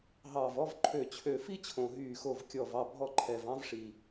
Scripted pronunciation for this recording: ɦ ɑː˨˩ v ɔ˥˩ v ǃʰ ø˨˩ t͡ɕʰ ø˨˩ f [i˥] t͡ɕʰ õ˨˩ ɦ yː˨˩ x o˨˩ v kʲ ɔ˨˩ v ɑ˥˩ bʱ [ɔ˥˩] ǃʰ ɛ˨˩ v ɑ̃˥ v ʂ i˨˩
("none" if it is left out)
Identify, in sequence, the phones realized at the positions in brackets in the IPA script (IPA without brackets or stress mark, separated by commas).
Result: i˥, ɔ˥˩